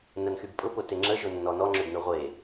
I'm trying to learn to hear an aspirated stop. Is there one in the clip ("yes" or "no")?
no